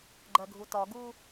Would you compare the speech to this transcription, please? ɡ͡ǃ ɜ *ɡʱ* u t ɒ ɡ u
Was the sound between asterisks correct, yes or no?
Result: yes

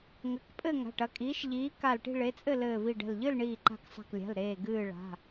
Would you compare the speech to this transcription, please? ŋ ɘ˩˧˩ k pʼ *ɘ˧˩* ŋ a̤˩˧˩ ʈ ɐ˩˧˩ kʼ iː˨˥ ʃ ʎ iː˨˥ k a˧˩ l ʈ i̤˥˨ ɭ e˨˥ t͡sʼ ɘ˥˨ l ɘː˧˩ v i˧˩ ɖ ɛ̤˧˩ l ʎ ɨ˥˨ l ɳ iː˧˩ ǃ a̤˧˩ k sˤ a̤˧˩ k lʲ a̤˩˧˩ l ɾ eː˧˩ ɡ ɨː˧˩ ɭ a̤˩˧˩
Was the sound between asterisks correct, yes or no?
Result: no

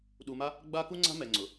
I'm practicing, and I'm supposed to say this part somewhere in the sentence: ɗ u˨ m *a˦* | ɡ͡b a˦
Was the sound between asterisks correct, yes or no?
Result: yes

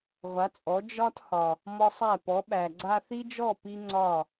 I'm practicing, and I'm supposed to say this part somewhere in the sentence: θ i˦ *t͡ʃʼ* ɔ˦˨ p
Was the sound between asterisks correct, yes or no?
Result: no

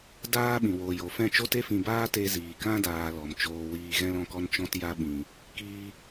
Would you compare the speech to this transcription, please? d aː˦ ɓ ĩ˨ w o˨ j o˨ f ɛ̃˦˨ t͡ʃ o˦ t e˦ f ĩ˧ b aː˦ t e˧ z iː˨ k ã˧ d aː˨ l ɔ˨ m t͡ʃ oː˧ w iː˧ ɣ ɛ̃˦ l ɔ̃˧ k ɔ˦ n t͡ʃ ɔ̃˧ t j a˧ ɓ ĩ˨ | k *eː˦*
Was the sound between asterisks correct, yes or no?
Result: no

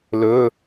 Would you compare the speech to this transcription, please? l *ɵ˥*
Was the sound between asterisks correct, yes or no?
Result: no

